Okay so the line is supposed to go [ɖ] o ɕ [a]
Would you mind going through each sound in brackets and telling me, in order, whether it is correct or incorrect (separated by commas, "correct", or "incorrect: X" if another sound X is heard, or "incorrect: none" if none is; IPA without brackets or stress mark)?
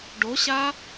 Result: correct, correct